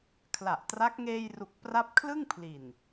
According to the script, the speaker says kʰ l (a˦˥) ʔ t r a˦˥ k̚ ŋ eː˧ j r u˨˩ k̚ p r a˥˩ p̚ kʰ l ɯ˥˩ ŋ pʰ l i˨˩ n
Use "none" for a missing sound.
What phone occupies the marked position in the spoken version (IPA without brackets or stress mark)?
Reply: a˨˩